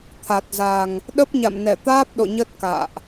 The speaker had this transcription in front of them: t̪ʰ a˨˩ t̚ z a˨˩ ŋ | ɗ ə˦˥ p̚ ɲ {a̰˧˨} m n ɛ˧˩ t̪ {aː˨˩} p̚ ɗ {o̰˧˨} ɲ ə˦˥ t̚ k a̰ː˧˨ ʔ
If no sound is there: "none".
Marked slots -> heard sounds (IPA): a̰˧˨, aː˦˥, o̰˧˨

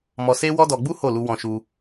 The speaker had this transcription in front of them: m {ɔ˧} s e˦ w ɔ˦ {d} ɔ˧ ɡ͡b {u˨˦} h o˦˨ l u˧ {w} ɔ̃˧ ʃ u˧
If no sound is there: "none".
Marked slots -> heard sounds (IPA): ɔ˧, d, u˦, w

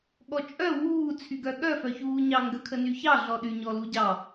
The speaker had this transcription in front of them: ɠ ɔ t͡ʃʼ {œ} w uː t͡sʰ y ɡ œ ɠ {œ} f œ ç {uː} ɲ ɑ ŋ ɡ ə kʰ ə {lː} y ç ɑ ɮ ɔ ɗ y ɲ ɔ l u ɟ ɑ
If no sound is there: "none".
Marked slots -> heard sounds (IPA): œ, œ, uː, n

